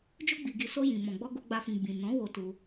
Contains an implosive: no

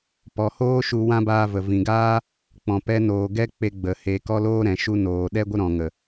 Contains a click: no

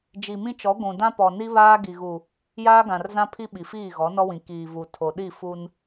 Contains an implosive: yes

